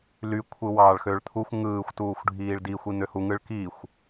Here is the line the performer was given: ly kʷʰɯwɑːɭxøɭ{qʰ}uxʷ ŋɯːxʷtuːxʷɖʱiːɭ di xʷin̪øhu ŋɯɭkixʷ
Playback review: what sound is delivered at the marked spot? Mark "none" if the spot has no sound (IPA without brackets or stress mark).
t̪ʰ